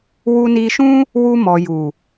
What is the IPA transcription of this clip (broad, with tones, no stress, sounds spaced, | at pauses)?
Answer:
w u˧ n i˧ ʃ ũ˦ | w u˧ m ɔ˨ j u˨